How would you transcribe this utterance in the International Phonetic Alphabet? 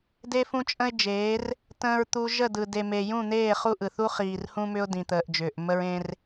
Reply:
de˦fũ˦t͡ʃʼə̃˦ɪ̯d͡ʒeː˨˦r | tə̃ː˨ɹt̪u˨ ʒə˦˨dɯ˨ de˨me˨jũ˦˨n̪eː˦˨ χu˦ʔɯ˨ θu˦χiː˨rhũ˦mʏ˦ʊ̯ dĩ˨t̪əː˨ʔ d͡ʒʏː˨ʔmə˦ɹẽ˦r

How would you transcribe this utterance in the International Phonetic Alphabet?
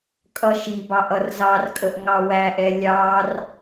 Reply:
kʼʌʃibɑʔ ʌrzɑrkʼəʔ ŋɑwæʔɛ lʲɑr

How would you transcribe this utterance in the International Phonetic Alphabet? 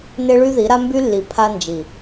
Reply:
ne˦ɭy˦ði˨˦ ɾa˦mby˦lːi˨ pʰa˦nd͡ʒi˨

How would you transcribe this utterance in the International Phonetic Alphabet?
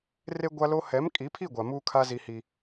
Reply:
re˦ɡʷa˦lo˦ hɛ˨˦mkʼi˨˦pʰi˦˨ ɡʷa˨muː˦kʰa˦ zi˦hi˦

